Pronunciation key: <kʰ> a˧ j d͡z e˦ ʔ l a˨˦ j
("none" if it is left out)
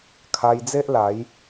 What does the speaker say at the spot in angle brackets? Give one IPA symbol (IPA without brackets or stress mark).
kʰ